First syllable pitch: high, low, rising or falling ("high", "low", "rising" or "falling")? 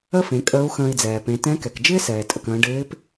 high